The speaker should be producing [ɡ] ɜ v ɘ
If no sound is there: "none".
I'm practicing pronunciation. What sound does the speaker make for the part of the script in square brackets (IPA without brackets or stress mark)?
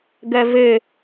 ɡ